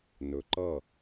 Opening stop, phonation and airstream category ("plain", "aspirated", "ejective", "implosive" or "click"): click